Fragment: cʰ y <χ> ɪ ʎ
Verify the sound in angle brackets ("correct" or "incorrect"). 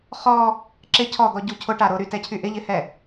incorrect